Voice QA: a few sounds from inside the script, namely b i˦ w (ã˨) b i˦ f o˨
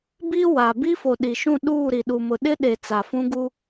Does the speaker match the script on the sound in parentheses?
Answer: no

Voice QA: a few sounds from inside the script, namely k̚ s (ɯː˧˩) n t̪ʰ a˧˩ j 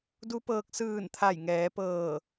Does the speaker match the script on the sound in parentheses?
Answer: yes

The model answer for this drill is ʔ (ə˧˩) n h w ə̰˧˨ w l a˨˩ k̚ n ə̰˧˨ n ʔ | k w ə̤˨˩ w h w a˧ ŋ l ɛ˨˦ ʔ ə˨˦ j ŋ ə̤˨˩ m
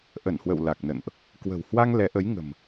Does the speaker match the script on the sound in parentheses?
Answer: yes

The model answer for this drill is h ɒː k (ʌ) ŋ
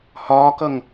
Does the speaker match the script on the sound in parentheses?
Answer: yes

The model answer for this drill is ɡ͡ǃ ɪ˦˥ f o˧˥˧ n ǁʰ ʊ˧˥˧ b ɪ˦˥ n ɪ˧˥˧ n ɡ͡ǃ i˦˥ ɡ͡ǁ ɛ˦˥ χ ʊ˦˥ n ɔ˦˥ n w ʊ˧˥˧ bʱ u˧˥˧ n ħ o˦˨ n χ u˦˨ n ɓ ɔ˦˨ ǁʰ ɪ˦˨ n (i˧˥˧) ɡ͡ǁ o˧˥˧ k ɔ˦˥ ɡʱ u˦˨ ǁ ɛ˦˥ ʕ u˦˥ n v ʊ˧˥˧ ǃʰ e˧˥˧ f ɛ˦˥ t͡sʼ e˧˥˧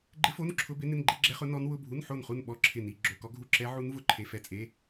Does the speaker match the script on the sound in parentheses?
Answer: yes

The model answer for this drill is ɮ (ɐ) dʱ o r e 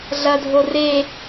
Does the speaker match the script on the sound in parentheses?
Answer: yes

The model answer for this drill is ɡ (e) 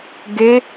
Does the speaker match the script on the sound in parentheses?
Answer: yes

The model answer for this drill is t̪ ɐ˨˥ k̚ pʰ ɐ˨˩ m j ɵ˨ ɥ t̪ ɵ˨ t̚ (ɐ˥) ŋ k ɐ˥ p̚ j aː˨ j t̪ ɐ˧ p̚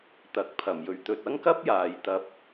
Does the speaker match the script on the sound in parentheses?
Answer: yes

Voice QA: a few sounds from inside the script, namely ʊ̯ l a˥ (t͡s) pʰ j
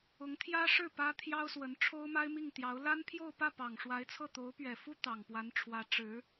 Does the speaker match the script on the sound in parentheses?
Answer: no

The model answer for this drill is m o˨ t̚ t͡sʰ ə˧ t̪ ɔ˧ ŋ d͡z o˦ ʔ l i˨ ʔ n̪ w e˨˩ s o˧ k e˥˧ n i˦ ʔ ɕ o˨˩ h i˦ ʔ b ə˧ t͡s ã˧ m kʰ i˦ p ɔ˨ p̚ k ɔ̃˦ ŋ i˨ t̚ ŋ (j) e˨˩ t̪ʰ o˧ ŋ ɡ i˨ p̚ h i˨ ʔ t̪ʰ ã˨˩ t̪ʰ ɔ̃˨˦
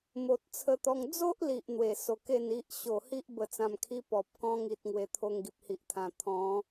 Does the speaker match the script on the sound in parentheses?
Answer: no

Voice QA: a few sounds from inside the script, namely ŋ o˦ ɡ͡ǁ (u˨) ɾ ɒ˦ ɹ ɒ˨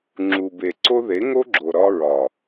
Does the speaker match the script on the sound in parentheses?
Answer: no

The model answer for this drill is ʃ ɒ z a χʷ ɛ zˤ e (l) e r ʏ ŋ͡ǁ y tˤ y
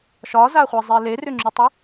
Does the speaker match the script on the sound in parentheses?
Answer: yes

